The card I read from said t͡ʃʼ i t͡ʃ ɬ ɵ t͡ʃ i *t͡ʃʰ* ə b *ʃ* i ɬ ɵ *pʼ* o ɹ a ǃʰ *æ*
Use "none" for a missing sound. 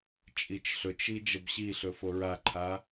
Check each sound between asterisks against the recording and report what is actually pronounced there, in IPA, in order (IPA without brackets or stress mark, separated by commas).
d͡ʒ, ɕ, f, a